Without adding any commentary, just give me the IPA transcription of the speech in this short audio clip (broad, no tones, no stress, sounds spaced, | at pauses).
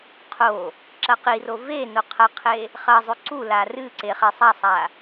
qʰ o | ǁ ɐ q i r o v e n o qʰ ɐ qʰ e | χ ɐ zˤ ʉ ǀ u l a r ɨ ǀ e χ e sˤ a sˤ a